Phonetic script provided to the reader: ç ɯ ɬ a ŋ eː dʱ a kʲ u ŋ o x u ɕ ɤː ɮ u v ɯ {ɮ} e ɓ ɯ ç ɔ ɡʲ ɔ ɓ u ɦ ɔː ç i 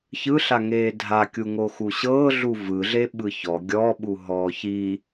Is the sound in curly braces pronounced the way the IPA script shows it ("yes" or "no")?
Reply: yes